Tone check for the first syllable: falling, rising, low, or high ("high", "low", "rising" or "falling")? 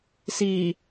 low